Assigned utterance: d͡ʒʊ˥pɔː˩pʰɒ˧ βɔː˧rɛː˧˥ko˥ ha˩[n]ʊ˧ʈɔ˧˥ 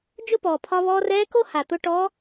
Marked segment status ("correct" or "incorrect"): incorrect